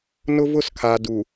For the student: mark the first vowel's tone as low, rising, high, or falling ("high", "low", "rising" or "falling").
high